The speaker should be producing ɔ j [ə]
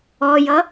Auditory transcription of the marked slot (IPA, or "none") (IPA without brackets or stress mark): ʌ